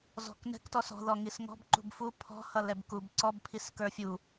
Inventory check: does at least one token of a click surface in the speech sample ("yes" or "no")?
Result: yes